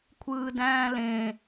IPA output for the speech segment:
kʷʰ ɯː d æ̃ː l ẽ

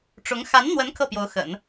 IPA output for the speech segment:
ʈ͡ʂ ʊ˧˥ ŋ x a˧˥ n n̪ w ə˧˥ n kʰ ɤ˥˩ p j o˧˥ ʊ̯ x ə̰˨˩˦ n

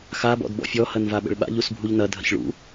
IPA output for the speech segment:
x a b ɔ̰ d b ɔ̰ fʲ ɔ h ɐ n v a ɓ ə̰ ɭ ɓ a̰ ʎ u s bʱ u ʎ n ɐ dʱ ə̰ ç ɭ ṵ

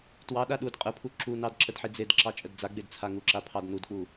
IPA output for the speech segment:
t w ɑ ɗ a ɗ u d qʼ ə pʰ u ǁ u n ɑ d ǁ ə d ħ i d͡z e d ǁ ɑ t͡ʃʼ ə d d͡z a ɡ͡b e d t͡sʰ a ŋ u ǁ a pʰ ɑ d n u d k͡p u

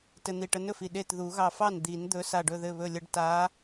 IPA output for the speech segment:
t ɘ˧ n̪ i˧˩ ʈ ə˧˥ n ɵ˥˩ f i˧˩ ɗ e˥˩ t ð u˨˩˦ ɣ ɑ˧˩ f ɑ˥˩ n d̪ i˨˩˦ n d̪ ɵ˧˥ s a˧˩ ɖ ɵ˧˩ ð ɘ˧˩ β ɵ˧˩ lʲ ə˧˥ ɖ t a˧˥

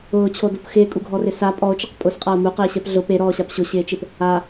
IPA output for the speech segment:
ʊː t͡ɕʰ o d o p x ɪː kʼ u ɡʱ ɔ r ɪ s a pʼ ɔ o̯ t͡ʃ ɪ q pʼ ʊ s qʼ a o̯ m u q ɪː ɕ ɛ p ɮ ʊ p e ɾ ɔː ɕ a p ɕ ʊ ɕ ɪː t͡ʃ ɪ p | a

